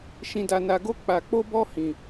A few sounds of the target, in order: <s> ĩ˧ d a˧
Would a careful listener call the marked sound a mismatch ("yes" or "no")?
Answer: yes